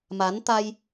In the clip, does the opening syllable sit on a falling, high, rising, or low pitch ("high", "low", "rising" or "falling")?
rising